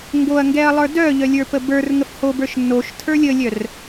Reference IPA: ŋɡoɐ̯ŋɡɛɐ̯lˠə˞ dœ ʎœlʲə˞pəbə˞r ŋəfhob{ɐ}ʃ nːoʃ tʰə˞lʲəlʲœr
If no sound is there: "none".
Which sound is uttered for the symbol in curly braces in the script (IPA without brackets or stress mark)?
ə˞